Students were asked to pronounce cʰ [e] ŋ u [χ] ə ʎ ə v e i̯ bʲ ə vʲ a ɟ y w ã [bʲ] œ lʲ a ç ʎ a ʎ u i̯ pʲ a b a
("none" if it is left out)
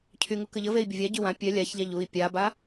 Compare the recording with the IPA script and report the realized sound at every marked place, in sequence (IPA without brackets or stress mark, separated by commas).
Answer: y, k, pʲ